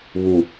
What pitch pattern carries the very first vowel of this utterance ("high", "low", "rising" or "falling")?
low